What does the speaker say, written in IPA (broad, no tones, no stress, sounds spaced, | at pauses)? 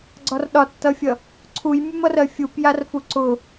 ɡ͡ǀ ɒ r ɗ ɒ tː ʌ fʲ ʌ | ǀʰ u j mʲ u m ʌ r ɜ fʲ u p j a r f u ǀ ʊ